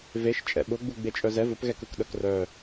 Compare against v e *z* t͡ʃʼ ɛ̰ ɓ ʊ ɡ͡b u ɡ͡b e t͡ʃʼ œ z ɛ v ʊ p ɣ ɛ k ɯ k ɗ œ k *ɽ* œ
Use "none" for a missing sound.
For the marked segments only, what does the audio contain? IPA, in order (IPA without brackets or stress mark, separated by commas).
ʃ, r